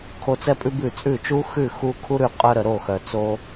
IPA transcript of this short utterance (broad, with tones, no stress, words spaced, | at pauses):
kʰo˧t͡sɛ˦pʼʉ˦bʉ˦˨ t͡sʼʉ˦˨t͡ʃu˦ xʉ˦˨xu˧ kʰu˦ɾʉ˧qʼœ˧ɾə˨ ɾo˦˨xœ˨ t͡so˦